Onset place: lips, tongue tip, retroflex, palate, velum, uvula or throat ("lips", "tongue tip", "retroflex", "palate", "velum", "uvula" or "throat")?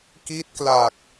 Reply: velum